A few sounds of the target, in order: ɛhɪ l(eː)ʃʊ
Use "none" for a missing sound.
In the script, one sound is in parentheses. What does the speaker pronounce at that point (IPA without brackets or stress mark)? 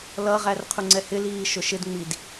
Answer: iː